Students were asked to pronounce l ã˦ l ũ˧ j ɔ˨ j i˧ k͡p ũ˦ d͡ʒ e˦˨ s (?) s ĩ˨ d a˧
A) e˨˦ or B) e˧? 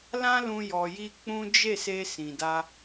B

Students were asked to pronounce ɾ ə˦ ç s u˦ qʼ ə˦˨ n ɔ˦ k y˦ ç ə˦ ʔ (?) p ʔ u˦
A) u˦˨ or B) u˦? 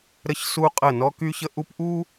B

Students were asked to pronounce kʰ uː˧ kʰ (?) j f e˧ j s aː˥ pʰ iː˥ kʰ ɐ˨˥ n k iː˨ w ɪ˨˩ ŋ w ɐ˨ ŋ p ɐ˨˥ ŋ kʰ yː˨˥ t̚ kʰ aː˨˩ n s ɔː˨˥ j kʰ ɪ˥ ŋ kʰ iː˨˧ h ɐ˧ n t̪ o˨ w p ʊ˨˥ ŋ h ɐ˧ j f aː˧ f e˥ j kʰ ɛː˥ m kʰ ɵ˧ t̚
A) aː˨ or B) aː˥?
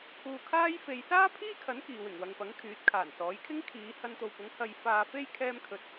B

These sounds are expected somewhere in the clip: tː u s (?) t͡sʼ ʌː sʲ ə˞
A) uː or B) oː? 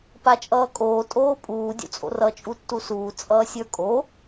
A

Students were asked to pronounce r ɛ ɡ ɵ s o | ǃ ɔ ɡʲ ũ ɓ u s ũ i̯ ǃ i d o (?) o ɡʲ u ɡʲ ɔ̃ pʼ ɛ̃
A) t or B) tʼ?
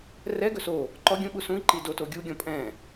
A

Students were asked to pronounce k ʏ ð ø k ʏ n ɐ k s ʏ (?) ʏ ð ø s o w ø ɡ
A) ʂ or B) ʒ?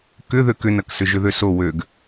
B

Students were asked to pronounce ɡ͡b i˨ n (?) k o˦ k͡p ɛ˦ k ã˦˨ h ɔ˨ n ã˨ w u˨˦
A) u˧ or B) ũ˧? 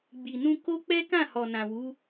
B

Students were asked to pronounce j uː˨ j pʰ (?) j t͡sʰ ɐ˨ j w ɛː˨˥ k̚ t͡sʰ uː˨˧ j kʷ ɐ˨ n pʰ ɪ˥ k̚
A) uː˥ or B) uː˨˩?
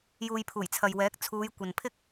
B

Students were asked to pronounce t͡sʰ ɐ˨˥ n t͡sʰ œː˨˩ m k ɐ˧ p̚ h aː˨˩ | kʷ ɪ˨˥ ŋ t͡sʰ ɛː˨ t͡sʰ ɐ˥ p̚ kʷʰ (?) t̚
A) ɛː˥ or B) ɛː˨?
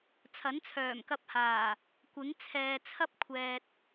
B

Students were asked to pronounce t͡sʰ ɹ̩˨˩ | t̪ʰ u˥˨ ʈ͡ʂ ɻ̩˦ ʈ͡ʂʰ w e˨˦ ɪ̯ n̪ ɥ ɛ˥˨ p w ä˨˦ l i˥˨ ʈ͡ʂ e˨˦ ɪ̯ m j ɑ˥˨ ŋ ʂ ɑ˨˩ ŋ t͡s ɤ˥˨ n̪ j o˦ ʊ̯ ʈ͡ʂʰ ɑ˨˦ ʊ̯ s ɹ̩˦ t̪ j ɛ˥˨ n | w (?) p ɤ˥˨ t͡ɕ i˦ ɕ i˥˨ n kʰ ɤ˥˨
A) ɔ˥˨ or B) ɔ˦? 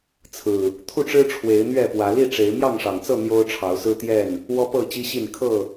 B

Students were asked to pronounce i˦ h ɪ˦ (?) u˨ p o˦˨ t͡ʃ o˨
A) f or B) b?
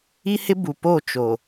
B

